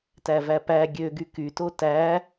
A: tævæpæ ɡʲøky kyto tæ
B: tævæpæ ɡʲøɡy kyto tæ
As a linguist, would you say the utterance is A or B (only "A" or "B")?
B